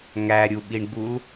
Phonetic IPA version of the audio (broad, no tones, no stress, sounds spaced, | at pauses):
ŋ æ ɾʲ u ɓ i ɳ ɡ͡b u l